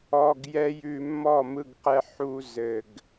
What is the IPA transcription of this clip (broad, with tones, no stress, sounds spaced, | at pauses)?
ɔ˨ ɡ j ɛ˧ j ʉ˨ mː ɔ˦˨ m ɯ˧ ɡ q ɛ˧ ħ u˧ z ɘ˨ ɡ